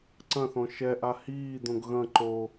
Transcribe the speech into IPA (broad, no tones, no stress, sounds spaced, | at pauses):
ǀ ɐ̃ θ ɔ̃ ʃ ɛ ʔ a h iː d̪ õ ɡ ɣ ɐ̃ ǃ o